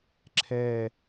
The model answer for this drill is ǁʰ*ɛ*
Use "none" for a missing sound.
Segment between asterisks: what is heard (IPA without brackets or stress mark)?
ɛ